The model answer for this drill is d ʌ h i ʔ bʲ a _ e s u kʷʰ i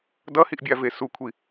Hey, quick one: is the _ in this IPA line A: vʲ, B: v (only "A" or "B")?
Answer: B